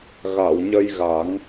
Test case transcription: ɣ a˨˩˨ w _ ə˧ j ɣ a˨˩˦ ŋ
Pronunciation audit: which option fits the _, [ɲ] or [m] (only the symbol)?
ɲ